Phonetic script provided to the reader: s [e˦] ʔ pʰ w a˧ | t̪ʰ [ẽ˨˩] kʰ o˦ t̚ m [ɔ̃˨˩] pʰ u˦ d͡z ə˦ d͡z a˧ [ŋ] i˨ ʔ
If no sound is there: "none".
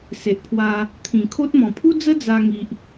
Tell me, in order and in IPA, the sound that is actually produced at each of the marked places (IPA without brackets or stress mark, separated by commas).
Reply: e˨, ĩ˨˩, ɔ̃˨˩, ŋ